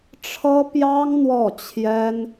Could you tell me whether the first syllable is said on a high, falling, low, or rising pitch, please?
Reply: high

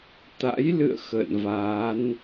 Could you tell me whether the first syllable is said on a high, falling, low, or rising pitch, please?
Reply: rising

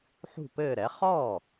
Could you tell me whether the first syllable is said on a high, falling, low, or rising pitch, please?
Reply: falling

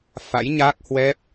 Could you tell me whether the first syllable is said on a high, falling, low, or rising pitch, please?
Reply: rising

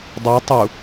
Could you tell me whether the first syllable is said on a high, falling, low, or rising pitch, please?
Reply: rising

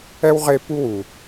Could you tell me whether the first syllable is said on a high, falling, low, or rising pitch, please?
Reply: high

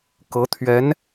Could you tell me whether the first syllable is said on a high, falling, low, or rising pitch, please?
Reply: rising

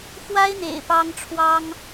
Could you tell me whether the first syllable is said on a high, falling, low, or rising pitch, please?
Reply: high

